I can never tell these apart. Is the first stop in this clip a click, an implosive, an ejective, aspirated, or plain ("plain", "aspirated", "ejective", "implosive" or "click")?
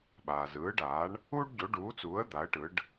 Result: implosive